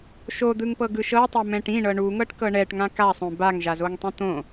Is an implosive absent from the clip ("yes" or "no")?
yes